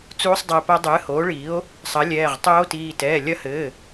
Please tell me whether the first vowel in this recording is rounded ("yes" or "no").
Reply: yes